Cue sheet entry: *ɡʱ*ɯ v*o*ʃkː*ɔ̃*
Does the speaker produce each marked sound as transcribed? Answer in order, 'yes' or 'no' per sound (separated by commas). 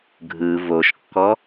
yes, yes, no